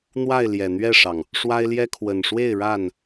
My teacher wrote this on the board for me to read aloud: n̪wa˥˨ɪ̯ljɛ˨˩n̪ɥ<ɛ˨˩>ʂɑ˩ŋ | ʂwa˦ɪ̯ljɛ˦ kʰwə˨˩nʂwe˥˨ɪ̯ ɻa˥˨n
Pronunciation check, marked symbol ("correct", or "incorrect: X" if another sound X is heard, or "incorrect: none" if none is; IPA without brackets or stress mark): incorrect: ɛ˥˨